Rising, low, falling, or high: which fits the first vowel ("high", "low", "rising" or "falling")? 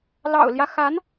low